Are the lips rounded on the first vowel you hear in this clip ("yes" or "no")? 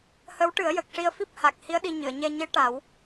no